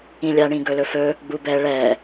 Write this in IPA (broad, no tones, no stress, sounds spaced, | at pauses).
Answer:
ĩ lʲ a ɳ ĩ ɡ ɵ l ɵ f ɵ | ɡ͡b u b ɛ ɭ ɛ